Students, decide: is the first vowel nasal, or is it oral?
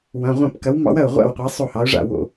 nasal